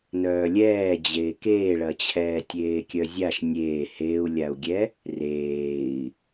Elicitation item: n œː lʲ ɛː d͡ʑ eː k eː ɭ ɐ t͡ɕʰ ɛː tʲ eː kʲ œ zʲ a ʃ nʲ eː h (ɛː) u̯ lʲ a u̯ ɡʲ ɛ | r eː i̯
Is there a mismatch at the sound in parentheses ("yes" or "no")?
yes